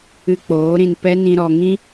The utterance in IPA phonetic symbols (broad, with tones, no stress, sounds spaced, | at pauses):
ɨ˧ k͡p oː˨˦ ɾ ĩ˧ n p ɛ˦ n ĩ˧ ɾ ɔ˧ ŋ ĩ˦